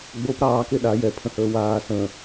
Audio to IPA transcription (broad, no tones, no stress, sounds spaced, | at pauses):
ɡ͡b o p ɾ ɑː k e ɗ a j ɛ pʰ ə̃ h əː w aː s ə̃ː